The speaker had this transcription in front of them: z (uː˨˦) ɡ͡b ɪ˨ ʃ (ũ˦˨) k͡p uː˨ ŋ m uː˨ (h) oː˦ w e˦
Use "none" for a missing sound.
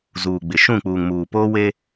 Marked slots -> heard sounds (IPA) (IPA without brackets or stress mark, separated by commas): uː˨, ũ˦˨, p